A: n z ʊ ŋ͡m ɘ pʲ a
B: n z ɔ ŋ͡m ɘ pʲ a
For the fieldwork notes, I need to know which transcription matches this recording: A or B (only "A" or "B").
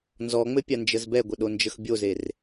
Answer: B